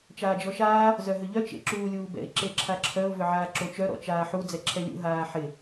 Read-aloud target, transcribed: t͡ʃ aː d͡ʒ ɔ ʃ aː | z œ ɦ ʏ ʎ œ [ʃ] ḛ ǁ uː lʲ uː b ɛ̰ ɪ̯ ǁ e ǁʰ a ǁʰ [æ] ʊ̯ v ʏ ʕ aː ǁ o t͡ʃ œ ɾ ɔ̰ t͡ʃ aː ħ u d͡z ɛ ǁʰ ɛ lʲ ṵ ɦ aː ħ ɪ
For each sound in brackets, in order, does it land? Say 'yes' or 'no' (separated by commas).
no, no